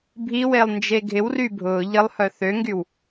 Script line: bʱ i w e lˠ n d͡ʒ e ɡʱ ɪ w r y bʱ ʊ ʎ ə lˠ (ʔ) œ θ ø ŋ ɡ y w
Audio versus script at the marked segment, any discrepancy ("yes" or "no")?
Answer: yes